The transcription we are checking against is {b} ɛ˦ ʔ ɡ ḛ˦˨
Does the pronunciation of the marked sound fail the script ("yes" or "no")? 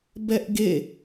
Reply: no